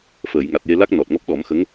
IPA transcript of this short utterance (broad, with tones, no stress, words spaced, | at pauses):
fəː˨˩˨j ŋa˨˩t̚je˧la˦˥k̚ nɔ˨˩t̚ŋɔ˦˥p̚ɗɔ˨˩˦mxə˧˥ŋ